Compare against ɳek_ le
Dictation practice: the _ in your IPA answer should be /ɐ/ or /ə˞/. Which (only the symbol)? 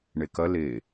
ɐ